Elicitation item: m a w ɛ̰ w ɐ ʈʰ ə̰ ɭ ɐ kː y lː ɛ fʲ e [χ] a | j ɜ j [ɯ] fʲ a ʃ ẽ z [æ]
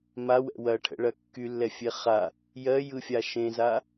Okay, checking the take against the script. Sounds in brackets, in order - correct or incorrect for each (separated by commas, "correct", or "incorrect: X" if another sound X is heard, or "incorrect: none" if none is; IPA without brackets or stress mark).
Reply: correct, correct, incorrect: a